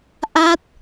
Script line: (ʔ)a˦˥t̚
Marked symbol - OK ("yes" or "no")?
yes